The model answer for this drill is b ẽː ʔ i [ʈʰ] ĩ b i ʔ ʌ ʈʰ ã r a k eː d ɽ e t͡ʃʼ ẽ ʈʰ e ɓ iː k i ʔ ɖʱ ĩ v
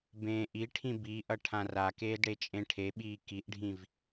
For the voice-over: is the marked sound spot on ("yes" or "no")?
yes